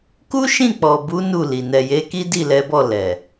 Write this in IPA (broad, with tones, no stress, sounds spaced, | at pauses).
k u˦ ʃ ĩ˦˨ k͡p ɔ˨ b u˨˦ n u˦˨ l i˨ n ɛ˨ j e˨˦ k i˦ d i˦˨ l ɛ˨˦ b ɔ˦˨ l ɛ˨